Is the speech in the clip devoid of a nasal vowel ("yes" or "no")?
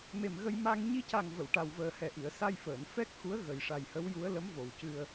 yes